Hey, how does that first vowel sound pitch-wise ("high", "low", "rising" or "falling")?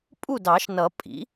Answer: falling